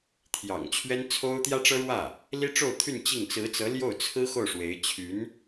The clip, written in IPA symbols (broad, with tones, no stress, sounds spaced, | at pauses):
t̪ʰ j ɑ̰˨˩ ŋ t͡ɕʰ ɥ ɛ˥ n t͡sʰ o˥ ʊ̯ t̪ j ä˥ ʈ͡ʂ ɤ˥ ɻ w ä˥˩ | l i˥ ʈ͡ʂ o˥˧ ʊ̯ t̪ʰ y˥˧ n t͡ɕ i˥˩ ŋ t͡s ɹ̩˧˥ t͡s ɤ˧˥ l j o˥˩ ʊ̯ t͡sʰ ɹ̩˥ x o˥˩ ʊ̯ ʂ w e˧˥ ɪ̯ t͡ɕʰ y˧˥ n